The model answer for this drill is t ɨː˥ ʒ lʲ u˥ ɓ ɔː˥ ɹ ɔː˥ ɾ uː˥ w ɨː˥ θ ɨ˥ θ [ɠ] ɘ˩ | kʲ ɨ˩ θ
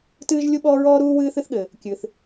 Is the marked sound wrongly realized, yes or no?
no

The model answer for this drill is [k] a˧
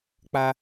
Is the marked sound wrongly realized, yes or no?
yes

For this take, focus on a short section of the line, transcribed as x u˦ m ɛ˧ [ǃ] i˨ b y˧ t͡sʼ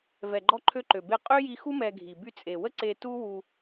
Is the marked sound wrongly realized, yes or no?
yes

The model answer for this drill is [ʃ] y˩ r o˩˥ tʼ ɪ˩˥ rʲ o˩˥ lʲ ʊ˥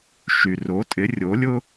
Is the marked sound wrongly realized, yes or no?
no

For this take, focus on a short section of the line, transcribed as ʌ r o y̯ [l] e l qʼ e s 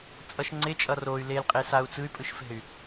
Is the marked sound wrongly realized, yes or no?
no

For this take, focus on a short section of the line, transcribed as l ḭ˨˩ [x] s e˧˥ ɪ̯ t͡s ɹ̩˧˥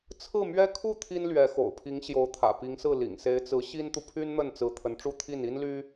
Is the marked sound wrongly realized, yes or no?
yes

